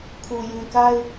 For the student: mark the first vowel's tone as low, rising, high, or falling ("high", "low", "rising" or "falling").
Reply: low